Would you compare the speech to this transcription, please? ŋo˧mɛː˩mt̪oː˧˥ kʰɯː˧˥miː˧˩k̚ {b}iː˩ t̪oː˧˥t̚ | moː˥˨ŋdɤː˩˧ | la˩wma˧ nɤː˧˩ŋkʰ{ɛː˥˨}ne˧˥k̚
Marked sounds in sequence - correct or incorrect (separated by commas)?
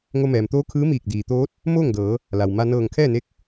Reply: incorrect, correct